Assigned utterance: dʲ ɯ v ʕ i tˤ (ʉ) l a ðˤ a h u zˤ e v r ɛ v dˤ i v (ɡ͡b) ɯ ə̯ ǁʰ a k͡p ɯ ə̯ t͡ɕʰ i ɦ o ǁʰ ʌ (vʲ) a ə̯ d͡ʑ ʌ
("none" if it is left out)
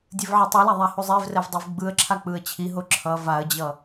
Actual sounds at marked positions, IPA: u, ɡ͡b, v

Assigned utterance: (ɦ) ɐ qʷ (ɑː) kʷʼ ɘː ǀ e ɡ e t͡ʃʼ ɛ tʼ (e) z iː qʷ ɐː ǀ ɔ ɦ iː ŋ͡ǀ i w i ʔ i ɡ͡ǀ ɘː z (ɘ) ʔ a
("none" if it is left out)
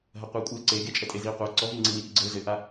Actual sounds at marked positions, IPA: ɦ, ɐː, e, ɘ

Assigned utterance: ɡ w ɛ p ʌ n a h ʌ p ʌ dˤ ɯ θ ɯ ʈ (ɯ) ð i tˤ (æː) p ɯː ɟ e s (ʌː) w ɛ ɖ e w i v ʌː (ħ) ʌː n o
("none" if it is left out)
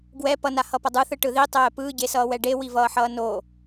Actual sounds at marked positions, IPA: ɯ, ɛː, ʌː, ħ

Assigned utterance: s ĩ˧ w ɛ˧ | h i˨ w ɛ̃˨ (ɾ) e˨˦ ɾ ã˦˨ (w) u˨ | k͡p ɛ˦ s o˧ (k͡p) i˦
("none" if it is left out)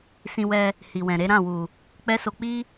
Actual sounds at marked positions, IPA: ɾ, w, k͡p

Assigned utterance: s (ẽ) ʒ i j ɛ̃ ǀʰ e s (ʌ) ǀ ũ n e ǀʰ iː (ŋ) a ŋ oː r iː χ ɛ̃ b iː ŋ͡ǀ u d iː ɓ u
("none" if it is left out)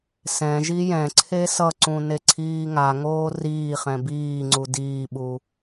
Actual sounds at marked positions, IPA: ɛ̃, ʌ, ŋ

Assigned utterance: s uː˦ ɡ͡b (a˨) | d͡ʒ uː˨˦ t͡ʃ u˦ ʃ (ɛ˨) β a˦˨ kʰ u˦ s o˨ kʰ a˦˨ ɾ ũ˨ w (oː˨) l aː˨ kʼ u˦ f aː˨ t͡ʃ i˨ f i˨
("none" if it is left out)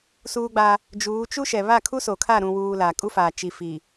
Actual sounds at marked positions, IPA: a˦, ɛ˨, uː˨

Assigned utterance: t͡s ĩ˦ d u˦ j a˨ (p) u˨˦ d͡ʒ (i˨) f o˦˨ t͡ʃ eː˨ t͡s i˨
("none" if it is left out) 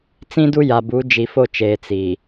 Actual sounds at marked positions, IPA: b, i˨

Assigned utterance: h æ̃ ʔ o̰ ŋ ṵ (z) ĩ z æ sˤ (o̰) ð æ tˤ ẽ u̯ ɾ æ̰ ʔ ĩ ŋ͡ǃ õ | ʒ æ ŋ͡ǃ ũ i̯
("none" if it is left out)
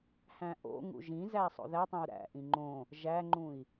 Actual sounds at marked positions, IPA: ʒ, o̰

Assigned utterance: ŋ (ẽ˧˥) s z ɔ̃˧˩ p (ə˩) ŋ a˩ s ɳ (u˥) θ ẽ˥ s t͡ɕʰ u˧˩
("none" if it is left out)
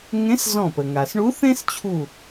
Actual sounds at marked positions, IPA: ẽ˧˥, ə˩, u˧˥

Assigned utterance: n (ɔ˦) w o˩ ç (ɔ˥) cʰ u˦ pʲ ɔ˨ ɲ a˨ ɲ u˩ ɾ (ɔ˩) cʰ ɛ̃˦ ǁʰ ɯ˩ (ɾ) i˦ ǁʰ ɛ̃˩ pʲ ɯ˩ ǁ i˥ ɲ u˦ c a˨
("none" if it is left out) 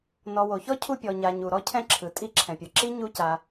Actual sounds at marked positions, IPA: ɔ˨, ɔ˥, ɔ˥, tʼ

